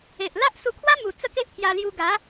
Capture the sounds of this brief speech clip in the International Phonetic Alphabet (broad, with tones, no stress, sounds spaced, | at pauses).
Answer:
e˨ ʔ l a˦ ʔ s u˧ kʰ w a˦ m u˨˩ t͡s ə˥˧ k e˦ ʔ pʰ j a˧ l j u˧ ɡ a˨˦